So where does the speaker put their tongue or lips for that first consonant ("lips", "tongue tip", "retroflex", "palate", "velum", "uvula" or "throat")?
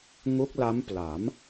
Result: velum